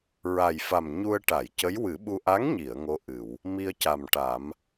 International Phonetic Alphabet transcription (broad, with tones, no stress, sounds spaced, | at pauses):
ɹ a˨˩ j f a˨˩ m ɲ u˧ ə̯ ʈ a˨˩˨ j c ə˧˥ j w ɨ˨˩˦ ɓ u˧ ʔ a˧˥ ŋ ɲ i˨˩˨ ə̯ ŋ o˧˥ ʔ ɨ˨˩˨ w | m i˧ ə̯ c a˨˩ m ʈ a˨˩˦ m